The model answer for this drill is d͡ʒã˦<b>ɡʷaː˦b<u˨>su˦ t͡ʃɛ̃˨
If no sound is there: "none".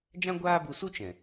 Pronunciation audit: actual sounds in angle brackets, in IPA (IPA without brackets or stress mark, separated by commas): none, u˧